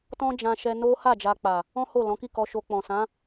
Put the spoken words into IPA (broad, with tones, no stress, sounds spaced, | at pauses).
t ɔ̃˦ d͡ʒ ã˧ ʃ ɛ˧ n o˦ h a˦˨ d͡ʒ a˧ k͡p a˨ | ɔ̃˦ h o˦˨ l ɔ̃˨˦ k i˦˨ k ɔ˧ ʃ o˧ k͡p ɔ̃˨ s ã˨˦